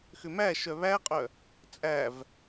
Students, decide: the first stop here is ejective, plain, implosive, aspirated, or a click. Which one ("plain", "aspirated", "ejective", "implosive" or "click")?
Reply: ejective